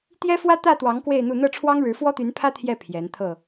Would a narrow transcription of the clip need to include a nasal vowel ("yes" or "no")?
no